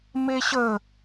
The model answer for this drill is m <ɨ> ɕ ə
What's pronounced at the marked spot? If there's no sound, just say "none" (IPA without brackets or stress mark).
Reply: e